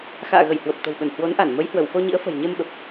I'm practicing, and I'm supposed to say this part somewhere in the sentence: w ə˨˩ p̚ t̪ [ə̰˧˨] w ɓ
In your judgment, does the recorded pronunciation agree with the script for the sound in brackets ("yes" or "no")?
no